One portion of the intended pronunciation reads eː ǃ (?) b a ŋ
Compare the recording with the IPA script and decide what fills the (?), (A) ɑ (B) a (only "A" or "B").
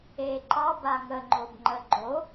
A